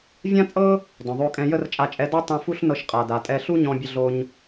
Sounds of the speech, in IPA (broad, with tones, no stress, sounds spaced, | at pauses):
vʲ ã˥ t͡sʼ ɤ˥ | d ɔ̃˩ ðˤ o˧ kʼ ɛ̃˧ j ə˥ r t͡ʃʼ a˧ t͡ʃʼ ɛ˧ d ɔ˥ tˤ ũ˧ f u˥ ɬ n ɤ˧ ʃ qʼ a˩ d a˩ tʼ ɛ˧ ɬ u˥ ɲ ɔ̃˧ bʲ ə˧ ɮ o˧ ɲ